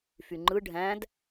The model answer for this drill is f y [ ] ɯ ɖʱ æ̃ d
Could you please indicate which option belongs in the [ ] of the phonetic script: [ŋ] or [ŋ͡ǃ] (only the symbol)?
ŋ͡ǃ